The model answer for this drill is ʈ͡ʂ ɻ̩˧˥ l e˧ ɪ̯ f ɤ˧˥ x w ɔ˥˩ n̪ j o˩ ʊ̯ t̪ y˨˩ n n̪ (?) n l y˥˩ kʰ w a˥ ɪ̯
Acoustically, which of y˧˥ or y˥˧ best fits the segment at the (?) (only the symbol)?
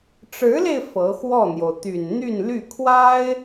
y˥˧